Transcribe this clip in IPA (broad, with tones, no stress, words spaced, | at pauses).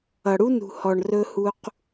ʌ˨ɽu˧nṳ˨hɔ˨ɳ rɵ˧hu˧q